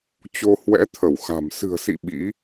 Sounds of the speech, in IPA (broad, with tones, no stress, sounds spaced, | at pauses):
t͡ɕ o˧ h w ɛ̰˧˥ t̪ʰ ə˧˩ w x a̤˨˩ m s ɨ̤˨˩ ə̯ s ḭ˧˨ ɓ ḭ˧˥